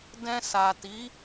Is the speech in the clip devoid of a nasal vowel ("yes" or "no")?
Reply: no